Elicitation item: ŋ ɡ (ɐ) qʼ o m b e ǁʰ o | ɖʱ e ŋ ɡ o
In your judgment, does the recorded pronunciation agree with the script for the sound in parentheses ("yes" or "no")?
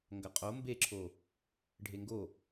yes